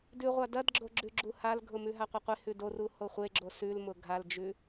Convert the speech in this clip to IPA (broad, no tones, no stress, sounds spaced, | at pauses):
d ʉ ʁʷ a d ɐ d ɡ͡ǁ o ɡ͡ǁ ʉ ɡ͡ǁ u h a l ɡʱ ʊ m ʉ ɦ a qʷ ɐ qʷ e h ʉ d o r u h o χʷ e ɡ͡ǁ o s ʉ l m ʊ ɡʱ a l d͡ʒ ʉ